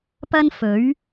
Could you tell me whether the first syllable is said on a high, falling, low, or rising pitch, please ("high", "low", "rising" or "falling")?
high